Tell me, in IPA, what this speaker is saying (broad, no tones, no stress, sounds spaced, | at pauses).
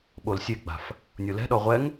ɓ o l sʲ e ɡ͡b a̤ f | nʲ o l ɛ̤ ɗ ɔ ʁʷ ɛ ŋ